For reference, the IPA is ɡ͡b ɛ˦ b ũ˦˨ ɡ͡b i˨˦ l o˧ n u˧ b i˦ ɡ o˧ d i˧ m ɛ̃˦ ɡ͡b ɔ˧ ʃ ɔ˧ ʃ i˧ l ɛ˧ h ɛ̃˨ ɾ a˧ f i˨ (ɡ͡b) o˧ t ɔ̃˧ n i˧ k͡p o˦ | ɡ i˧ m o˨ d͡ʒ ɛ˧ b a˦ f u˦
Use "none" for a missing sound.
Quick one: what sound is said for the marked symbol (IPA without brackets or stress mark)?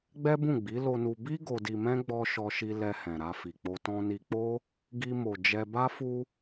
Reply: k͡p